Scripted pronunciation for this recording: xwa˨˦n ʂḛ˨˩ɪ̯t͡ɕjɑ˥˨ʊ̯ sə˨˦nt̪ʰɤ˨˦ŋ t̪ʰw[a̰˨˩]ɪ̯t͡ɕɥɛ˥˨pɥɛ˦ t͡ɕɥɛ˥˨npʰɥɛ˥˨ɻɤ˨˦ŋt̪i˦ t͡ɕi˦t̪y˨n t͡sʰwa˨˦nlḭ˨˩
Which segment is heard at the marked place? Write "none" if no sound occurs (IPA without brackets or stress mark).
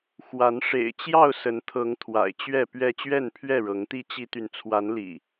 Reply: a̰˨˩